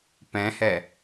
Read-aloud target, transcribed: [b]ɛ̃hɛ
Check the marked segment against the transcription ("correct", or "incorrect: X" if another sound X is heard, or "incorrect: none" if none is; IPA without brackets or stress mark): incorrect: p